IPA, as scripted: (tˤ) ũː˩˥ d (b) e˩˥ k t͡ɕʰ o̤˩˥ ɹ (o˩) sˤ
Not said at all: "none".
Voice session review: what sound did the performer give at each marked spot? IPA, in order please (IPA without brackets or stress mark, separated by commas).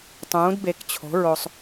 tˤ, b, o˧